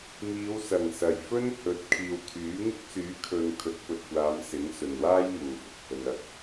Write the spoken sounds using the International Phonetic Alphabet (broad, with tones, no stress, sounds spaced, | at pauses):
m iː˨˧ w s ɐ˨˩ ŋ s ɐ˨˩ j f ɵ˥ n h ɵ˨˥ t̚ kʰ iː˨ w t̪ʰ yː˨˥ ŋ ɪ˥ k̚ s yː˨˥ kʰ ɵ˨ n kʰ ɵ˨˥ t̚ p ɵ˨ t̚ kʷ aː˨˧ m s ɪ˨˥ ŋ s ɵ˨ n w aː˥ j m uː˨ f ʊ˨ k̚ h ɵ˧ n ɐ˧ k̚